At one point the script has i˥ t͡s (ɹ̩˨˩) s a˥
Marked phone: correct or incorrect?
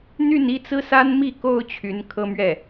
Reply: incorrect